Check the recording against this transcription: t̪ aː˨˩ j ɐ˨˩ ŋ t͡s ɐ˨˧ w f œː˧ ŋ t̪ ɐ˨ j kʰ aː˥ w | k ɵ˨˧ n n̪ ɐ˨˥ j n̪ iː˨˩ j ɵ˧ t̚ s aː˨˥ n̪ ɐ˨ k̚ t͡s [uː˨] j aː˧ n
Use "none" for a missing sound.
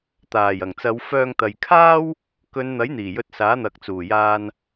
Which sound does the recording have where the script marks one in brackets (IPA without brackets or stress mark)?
uː˨˩